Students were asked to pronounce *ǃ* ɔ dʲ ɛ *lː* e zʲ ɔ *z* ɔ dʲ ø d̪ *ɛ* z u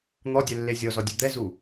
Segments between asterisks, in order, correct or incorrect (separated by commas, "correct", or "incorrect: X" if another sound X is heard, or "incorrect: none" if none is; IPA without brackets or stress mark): incorrect: n̪, correct, correct, correct